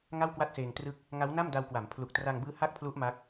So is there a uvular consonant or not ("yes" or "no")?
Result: no